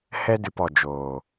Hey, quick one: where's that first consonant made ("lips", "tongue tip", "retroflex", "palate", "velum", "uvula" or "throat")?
throat